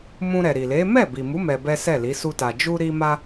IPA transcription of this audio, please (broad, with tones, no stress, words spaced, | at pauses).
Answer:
mũ˧ɾɛ˨ɾi˨le˨˦ mɛ˦˨bi˨mu˨˦ mɛ˧bɛ˦sɛ˦˨li˨˦ su˧ta˨ d͡ʒu˧ɾi˧ma˧